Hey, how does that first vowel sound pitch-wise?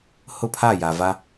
falling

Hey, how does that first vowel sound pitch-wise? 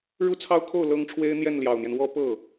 falling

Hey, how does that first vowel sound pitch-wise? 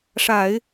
low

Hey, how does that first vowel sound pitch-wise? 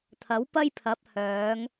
rising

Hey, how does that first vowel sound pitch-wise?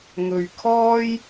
low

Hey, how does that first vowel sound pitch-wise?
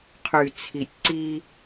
low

